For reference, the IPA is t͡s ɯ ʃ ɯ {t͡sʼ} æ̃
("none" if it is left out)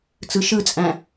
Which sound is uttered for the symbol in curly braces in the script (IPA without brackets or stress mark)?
t͡sʼ